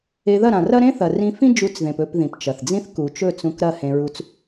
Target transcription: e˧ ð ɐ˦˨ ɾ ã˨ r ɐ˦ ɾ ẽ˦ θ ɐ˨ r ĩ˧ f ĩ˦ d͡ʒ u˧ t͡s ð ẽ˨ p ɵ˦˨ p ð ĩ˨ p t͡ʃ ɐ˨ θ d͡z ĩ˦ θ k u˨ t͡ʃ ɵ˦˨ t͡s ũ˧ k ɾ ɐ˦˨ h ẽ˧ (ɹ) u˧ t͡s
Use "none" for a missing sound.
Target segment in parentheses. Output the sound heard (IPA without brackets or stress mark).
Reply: ɹ